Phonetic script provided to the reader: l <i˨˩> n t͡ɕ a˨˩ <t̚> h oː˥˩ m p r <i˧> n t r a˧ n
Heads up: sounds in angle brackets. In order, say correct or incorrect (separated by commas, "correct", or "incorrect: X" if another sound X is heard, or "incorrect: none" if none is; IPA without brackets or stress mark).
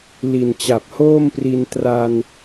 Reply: correct, incorrect: p̚, correct